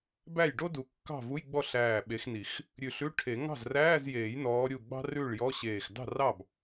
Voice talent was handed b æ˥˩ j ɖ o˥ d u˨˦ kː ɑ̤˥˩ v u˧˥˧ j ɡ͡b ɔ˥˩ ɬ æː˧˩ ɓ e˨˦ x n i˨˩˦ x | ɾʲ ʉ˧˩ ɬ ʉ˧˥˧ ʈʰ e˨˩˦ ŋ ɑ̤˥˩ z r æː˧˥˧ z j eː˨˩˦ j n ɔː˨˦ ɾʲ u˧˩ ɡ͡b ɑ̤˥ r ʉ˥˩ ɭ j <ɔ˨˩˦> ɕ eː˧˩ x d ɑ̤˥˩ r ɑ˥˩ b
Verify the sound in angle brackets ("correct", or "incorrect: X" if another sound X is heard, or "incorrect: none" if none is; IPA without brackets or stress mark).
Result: incorrect: ɔ˧˥˧